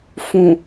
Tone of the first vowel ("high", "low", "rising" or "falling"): low